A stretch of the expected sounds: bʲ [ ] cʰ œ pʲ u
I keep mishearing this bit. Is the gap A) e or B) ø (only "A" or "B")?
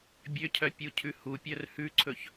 B